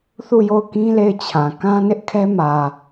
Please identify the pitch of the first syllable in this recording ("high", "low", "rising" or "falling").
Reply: falling